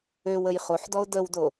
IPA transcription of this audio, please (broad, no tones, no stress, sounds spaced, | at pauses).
ø w ə j χ o ħ d ɔ ʊ̯ d ə w d o